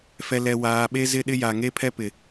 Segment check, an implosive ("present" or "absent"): present